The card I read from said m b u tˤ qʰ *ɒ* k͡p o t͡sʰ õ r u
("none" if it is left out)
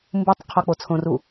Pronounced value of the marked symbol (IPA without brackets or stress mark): ɒ